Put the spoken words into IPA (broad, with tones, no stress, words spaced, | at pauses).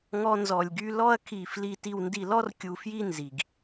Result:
ŋɔ˦nzɔ˧lʲɡy˦ lɔ˦ɐ̯kʰi˧fli˧ ti˧wndi˧lɔ˦r kʲu˧fji˦nzi˨ɡ